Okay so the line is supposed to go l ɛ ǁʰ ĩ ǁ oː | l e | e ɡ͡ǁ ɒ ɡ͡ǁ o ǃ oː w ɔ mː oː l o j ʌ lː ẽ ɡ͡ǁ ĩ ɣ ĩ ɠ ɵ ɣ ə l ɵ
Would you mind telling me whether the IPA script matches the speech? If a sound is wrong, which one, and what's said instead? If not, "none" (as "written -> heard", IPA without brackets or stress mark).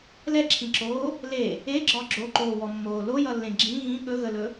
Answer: none